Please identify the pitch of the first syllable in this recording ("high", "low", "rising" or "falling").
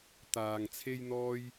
low